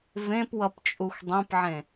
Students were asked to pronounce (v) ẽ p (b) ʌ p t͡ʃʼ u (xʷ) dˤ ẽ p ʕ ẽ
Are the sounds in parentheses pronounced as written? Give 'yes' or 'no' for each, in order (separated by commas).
yes, no, yes